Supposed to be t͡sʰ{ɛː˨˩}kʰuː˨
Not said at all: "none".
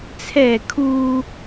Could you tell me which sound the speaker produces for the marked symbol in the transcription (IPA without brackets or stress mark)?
ɛː˨˩